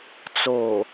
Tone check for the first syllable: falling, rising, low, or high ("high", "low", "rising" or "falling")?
low